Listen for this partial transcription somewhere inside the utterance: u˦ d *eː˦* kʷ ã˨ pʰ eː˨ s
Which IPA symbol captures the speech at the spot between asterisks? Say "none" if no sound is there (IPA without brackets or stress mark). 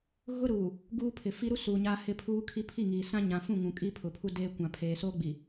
eː˦